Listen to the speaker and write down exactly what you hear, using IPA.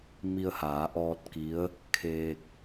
m i˧ ə̯ h aː˩˧ ʔ ɔː˧ t̚ k i˧˥ ə̯ | kʰ eː˧ k̚

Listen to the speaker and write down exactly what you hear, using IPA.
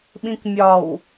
ɓ ĩ k mʲ ɒ w

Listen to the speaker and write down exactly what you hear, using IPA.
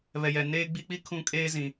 β ɛ˨ j ɛ˨ n eː˦ ɡ͡b i˦ k͡p i˦ kʰ ũ˦ kʼ eː˦ z ĩ˨

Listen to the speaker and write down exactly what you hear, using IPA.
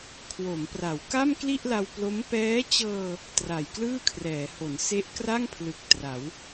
kʰ w o˩˦ m p r a˩˦ w k a˥˩ m k l i˥˩ ʔ l a˧ w p l o˦˥ m p ɛː˦˥ t͡ɕ ɤː˧ | t r a˨˩ j k l ɯː˥˩ kʰ r ɛː˩˦ h o˩˦ n s e˦˥ ʔ k r a˥˩ ŋ pʰ l ɯ˨˩ k̚ t r a˩˦ w

